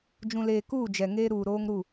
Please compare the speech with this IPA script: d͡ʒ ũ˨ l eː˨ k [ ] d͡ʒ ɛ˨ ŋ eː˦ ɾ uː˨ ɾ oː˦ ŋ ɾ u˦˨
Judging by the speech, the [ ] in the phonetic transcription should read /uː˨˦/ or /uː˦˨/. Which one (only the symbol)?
uː˦˨